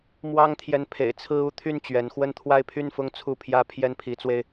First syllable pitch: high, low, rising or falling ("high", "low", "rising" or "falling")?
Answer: high